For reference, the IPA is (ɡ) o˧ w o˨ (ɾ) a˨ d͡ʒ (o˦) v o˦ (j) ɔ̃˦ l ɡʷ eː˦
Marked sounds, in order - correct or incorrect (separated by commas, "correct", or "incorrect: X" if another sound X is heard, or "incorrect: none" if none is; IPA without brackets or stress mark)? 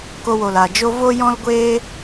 incorrect: k, incorrect: l, correct, correct